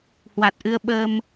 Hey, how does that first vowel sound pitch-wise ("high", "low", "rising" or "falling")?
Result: low